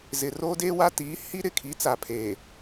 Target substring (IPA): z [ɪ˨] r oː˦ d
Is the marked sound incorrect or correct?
correct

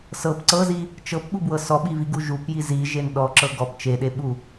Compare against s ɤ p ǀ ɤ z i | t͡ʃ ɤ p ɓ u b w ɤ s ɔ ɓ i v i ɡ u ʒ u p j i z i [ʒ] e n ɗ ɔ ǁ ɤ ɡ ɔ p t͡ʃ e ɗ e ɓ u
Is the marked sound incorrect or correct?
correct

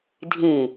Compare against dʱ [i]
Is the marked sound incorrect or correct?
incorrect: ĩ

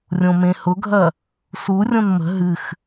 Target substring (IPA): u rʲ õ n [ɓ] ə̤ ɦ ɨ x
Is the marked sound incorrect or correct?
incorrect: m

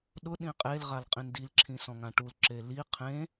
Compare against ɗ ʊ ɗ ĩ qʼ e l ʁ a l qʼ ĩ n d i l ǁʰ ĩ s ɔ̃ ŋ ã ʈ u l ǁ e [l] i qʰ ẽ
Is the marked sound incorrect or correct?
correct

